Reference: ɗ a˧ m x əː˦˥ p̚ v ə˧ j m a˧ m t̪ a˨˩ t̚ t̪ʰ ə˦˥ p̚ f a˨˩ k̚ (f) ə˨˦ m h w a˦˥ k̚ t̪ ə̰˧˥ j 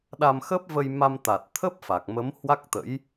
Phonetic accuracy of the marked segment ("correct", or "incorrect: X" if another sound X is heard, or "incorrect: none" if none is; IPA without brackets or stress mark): incorrect: m